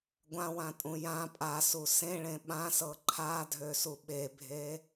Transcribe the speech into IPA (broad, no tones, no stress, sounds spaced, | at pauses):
ɡʷ ã w ã tʼ ũ j ã pʼ a s u s ẽ ɭ ẽ ɓ ã s ɤ ǃʰ a dʱ ø s u ɓ e bʱ e